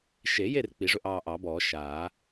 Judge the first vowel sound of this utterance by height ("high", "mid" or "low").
mid